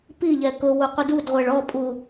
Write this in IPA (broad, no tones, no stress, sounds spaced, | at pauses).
p i ʎ ɛ k ʊ w u qʷ ɪ d u d ʁʷ ɛ ɭ ɔ pʼ u